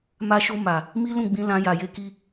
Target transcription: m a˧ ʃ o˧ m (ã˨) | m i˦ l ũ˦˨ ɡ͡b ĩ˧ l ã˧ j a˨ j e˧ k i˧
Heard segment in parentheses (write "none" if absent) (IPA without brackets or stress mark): a˨